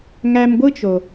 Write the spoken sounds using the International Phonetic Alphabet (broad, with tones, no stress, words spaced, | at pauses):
ŋæ˧mɡʷɯ˦t͡ʃo˨